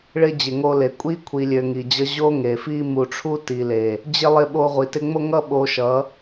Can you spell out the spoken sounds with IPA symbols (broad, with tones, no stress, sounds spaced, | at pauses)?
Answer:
ɭ ɪ˦ d͡ʑ ɪ˨ ŋ o˧ l e˨ kʷʼ i˦ kʷʰ i˨ lʲ ø˨ ŋ i˨ d͡ʑ ʌ˦ ʑ o˦ ŋ e˨ f i˦ m u˨ ʈ͡ʂʰ u˦ t i˨ l e˨ | d͡ʑ ɪ˦ lˠ ɪ˧ ɓ o˧ ʁʷ i˨ t ɪ˧ ŋ͡m o˦ ŋ ʌ˦ ɓ o˧ ʃ ʌ˨˦